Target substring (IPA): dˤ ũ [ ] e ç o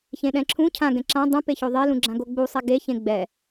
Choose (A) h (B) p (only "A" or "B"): B